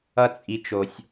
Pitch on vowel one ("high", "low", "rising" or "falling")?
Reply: high